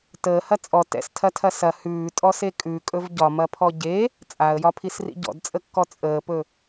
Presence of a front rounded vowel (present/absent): absent